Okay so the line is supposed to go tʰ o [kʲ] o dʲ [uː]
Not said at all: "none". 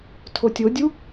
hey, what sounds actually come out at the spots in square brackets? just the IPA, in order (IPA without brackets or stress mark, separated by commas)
tʲ, u